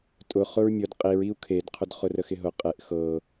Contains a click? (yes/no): no